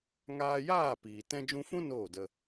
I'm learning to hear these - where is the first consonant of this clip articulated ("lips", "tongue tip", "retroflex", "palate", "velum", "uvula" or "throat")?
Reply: velum